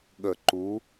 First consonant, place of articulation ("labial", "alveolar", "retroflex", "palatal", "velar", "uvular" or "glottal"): velar